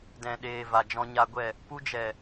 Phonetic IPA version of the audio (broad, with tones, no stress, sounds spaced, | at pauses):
d ɛ̃˨ ɗ eː˨ v a˨ d͡ʒ ɔ̃˧ ɲ a˧ ɡʷ ɛ˦˨ | p u˧ d͡ʒ ɛ˨